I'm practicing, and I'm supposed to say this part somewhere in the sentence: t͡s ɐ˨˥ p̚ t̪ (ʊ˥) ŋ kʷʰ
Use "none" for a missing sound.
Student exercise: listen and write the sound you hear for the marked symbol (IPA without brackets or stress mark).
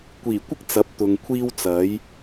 ʊ˨